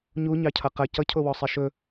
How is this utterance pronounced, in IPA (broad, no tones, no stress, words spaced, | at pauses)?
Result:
ɲuɲɑcʰʌ qɐ cʌcʰowɔsˤi ʃɵ